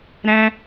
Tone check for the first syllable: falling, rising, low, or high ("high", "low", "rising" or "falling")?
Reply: high